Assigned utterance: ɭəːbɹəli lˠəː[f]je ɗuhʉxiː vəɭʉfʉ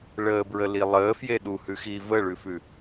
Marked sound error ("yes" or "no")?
no